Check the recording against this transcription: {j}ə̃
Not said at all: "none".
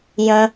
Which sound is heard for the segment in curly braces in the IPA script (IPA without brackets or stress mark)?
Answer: j